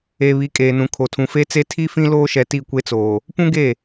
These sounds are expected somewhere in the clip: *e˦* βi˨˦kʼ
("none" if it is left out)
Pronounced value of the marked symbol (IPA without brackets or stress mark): e˨